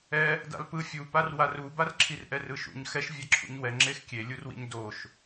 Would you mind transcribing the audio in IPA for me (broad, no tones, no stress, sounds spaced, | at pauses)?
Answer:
ɛ | d a̰ l p ɯ fʲ u p a r w a r u b a r ǁʰ i r ʔ ɛ r ɯ ʃ ṵ ɲ x ɛ ʃ vʲ ɛ ǁʰ ṵ ɲ w ɛ ŋ͡ǁ e x kʲ e lʲ u r w ḭ ɲ d o ʃ